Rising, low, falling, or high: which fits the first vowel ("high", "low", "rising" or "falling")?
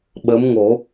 rising